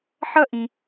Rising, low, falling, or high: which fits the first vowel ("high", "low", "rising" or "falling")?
high